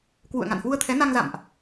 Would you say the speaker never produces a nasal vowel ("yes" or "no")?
yes